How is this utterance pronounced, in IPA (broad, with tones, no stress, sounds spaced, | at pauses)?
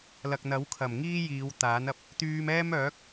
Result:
l ɐ˨ k̚ n̪ ɐ˨˥ w kʰ ɐ˨˩ m ŋ iː˥ j iː˨˧ w t̪ aː˨˥ n ɐ˨˥ p̚ | t̪ yː˧ m ɛː˥ m œː˨˥ k̚